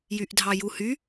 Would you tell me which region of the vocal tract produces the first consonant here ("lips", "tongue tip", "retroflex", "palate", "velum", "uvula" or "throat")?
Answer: palate